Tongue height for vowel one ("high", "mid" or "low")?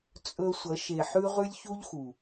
mid